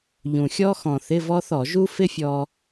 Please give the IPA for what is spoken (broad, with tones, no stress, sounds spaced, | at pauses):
ʎ ũ˨˩ xʲ ɔ˥ x ɔ̃˨˩ θ ɪ˧˥˧ v ɔ˥ θ ɔ˧˩˧ ʒ u˥ f ɪ˥ fʲ ɔ˧